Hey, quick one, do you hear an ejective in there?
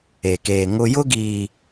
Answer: no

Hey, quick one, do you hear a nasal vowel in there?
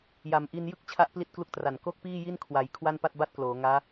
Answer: no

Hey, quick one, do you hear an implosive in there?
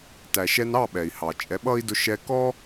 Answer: yes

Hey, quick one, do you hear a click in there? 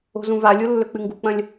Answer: no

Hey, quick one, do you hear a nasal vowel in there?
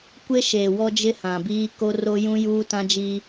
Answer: yes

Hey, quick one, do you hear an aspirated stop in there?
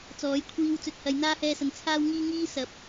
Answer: yes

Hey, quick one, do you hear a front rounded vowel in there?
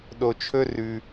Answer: no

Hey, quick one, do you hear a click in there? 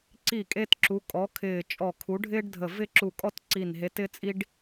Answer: yes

